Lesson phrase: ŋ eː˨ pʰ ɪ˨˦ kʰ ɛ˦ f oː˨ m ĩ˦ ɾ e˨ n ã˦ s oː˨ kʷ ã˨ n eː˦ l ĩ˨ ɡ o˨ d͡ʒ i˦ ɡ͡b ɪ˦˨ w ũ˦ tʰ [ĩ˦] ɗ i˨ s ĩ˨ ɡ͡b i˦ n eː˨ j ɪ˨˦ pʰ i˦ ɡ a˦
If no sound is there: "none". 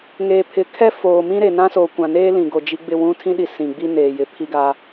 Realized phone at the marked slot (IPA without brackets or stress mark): ĩ˦